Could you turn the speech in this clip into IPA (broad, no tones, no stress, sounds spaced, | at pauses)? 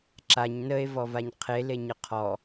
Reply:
ǁ a ɲ n ə e̯ v ɔ v a ɲ qʰ e l e ɲ ə qʰ ɔ